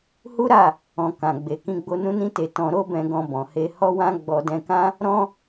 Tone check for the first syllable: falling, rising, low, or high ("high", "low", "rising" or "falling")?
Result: high